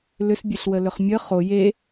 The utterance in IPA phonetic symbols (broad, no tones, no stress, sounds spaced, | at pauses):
l ʏ s bʲ ø ɬ w ə l ʏ χ mʲ ə χ o j e